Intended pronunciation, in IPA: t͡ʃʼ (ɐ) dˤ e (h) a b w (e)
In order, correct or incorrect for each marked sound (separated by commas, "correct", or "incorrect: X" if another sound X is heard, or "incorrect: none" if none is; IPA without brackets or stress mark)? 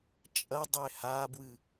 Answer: correct, correct, incorrect: ɨ